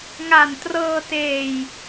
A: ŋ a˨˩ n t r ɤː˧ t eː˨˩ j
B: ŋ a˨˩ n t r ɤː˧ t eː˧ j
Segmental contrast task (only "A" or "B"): A